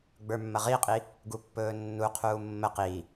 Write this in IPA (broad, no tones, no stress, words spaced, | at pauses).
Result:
ɡ͡bə˞mːɐʁiqʼi | ɡupːɵːnːuqʰuː mːə qiː